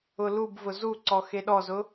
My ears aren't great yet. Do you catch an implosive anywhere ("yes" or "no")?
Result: yes